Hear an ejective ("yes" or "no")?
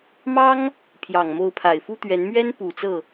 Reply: no